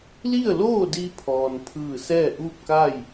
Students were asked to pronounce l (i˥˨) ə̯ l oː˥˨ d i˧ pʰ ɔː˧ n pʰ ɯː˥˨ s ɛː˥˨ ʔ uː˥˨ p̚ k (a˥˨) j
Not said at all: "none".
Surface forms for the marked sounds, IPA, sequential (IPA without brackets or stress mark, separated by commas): i˥˨, a˥˨